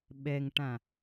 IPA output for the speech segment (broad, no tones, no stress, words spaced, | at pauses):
ɓɛŋʈã